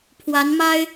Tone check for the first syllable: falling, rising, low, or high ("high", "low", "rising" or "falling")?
rising